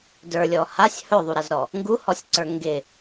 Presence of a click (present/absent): present